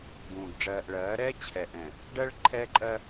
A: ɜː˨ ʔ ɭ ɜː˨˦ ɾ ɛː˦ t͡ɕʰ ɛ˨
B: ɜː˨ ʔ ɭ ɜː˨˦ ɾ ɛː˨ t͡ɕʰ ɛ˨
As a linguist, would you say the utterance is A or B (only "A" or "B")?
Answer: A